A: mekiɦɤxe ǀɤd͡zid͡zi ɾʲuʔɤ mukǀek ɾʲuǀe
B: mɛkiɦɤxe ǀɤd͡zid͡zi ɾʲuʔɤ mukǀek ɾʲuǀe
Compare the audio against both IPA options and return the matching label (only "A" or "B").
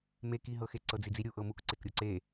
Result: A